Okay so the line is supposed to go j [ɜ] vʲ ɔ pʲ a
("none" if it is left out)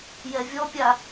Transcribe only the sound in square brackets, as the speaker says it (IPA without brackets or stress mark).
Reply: ɛ